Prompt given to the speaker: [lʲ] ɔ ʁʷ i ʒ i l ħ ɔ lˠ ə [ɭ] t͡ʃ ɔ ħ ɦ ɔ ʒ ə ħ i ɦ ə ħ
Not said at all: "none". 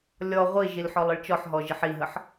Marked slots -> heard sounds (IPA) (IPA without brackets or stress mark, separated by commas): lʲ, ɭ